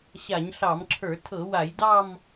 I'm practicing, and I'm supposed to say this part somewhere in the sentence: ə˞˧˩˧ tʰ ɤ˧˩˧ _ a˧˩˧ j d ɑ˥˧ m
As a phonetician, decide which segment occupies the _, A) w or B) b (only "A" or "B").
A